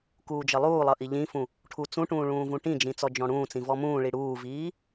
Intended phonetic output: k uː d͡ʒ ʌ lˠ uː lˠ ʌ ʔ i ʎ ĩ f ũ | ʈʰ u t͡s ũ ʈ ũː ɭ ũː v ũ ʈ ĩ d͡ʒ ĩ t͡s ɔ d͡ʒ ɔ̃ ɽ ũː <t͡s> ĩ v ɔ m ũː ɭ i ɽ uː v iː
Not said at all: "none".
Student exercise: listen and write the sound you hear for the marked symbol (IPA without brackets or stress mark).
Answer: t͡s